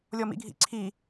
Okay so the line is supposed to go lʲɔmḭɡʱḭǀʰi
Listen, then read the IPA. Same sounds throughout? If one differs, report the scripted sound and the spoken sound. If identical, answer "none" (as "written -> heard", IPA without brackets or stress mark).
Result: none